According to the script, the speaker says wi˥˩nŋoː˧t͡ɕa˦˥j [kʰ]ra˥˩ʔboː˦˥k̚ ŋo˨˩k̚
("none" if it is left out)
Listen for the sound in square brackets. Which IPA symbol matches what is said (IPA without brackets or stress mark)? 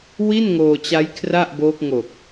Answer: kʰ